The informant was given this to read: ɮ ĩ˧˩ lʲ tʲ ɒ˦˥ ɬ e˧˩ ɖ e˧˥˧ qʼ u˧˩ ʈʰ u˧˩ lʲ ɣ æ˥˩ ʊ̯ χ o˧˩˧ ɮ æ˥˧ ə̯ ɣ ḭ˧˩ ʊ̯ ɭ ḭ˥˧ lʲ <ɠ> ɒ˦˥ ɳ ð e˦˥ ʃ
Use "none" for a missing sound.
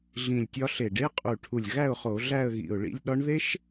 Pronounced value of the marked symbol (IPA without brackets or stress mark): ɗ